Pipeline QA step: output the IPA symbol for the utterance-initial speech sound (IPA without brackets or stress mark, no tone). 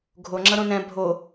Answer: ɡʱ